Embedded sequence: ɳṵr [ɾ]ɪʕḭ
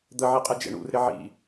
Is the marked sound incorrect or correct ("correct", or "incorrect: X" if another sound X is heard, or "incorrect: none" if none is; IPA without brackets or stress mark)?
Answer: correct